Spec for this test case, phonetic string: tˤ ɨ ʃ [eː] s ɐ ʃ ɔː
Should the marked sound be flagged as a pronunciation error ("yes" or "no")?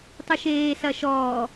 no